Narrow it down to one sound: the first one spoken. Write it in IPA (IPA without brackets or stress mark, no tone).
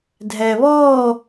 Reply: dʱ